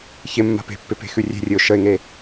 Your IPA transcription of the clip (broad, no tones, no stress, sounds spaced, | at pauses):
ç ɪ mː a̤ p e̤ pː ɪ p e̤ x ʉ rʲ e̤ rʲ ɨ ʊ̯ ʃ ə ɪ̯ ŋ e